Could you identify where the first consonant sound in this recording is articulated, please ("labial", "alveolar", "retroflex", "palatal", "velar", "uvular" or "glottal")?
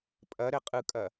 labial